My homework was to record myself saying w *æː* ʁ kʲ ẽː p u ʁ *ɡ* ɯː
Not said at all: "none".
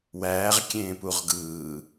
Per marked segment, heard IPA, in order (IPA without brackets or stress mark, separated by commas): æː, ɡ